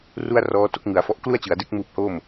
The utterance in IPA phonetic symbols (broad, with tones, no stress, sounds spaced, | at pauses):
r u˥˩ a̯ r ɔː˦˥ t o˦˥ k̚ ŋ ɯ˩˦ a̯ f ɔ˦˥ ʔ k l u˥˩ a̯ t͡ɕ ɯ˩˦ a̯ d e˦˥ k̚ m uː˦˥ p̚ h oː˥˩ m